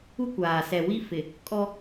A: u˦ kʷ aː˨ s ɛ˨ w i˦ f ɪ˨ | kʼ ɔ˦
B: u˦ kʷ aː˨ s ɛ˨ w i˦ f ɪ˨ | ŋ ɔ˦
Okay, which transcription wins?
A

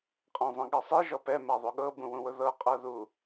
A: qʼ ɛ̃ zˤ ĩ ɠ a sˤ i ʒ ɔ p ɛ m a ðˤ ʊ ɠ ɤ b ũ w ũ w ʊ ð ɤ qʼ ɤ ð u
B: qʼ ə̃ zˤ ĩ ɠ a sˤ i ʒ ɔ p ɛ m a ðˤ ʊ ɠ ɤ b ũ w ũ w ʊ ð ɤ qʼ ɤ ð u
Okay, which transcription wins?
A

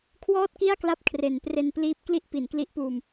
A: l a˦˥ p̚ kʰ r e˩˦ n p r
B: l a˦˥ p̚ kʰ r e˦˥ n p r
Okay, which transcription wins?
A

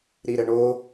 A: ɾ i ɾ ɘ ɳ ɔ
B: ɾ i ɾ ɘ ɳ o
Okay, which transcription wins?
B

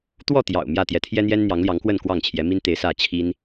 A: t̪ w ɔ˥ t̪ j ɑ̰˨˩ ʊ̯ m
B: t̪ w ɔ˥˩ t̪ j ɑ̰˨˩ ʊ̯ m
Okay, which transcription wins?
B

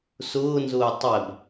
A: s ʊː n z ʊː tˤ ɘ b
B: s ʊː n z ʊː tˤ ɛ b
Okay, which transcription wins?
B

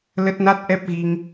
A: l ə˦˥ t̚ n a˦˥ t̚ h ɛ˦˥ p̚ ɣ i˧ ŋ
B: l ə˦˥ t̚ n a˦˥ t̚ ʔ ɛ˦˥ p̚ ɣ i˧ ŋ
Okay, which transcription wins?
B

